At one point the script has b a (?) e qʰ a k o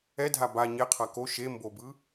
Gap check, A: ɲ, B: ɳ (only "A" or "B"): A